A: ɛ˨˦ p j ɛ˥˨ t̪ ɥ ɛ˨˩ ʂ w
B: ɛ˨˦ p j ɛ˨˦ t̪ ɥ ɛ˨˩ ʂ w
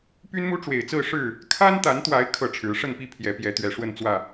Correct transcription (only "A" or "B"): B